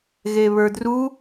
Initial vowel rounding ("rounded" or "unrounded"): unrounded